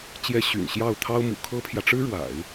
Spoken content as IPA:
t͡ɕ j ɛ˧˥ ɕ y̰˨˩ n ɕ j ɑ˥˩ ʊ̯ t̪ʰ ɑ˥ ʊ̯ m ṵ˨˩ kʰ ɤ˥ pʰ j ä˨ ʈ͡ʂ ɻ̩˥ ɻ w a̰˨˩˦ ɪ̯

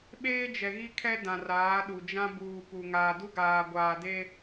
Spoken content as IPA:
ɓ eː˦ d͡ʒ ɛ˨ ɣ i˦ kʰ ɛ˦ d ã˨ r aː˨˦ ɗ u˨ d͡ʒ ã˦ b uː˨ p u˨ ŋ aː˨ d u˦ ɡ aː˨ ɡʷ aː˨ d e˦

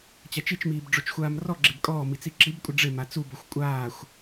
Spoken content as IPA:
t͡ɕ a t͡ʃ i t͡ʃ m iː b ɖ͡ʐ o t͡ʃ xʷ aː m r ɔ ɡ͡ǁ e b kʼ ɔː m i t͡s i ǁ i b kʷʼ ɪ ɖ͡ʐ ɪ m a t͡s u b o xʷ kʷʼ aː xʷ

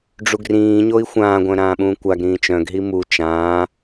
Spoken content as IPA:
ɖ͡ʐ u ɡ r ĩː ɲ o i̯ xʷ ãː ɡʷ œ̃ ɾ ãː ɓ ũː kʷ a ɡ ɾ ĩː t͡ʃ œ̃ ɡ ɦ i m u t͡ʃ ãː

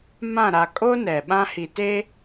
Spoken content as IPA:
m ã˦˨ ɾ a˨ kʼ o˦ n ɛ˨ ɓ ã˦ h i˨ t e˦

